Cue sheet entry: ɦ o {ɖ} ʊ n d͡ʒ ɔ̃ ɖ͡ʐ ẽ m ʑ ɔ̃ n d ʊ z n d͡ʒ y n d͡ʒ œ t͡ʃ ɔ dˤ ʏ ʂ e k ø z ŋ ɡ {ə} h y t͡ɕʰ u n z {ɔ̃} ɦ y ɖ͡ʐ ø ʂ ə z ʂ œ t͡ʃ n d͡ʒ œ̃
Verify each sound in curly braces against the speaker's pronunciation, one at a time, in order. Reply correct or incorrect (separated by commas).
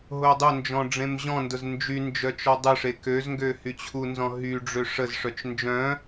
incorrect, incorrect, correct